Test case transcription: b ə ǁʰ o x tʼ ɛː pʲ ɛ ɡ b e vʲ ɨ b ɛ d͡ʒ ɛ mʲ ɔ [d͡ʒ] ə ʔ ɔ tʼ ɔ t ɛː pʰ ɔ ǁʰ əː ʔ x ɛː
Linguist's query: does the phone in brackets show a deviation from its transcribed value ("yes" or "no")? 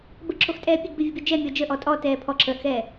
no